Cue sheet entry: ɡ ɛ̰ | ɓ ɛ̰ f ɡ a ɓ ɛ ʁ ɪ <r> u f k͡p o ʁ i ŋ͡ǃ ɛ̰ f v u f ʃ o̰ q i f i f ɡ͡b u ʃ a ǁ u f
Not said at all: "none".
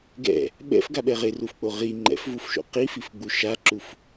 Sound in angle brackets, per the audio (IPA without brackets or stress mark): r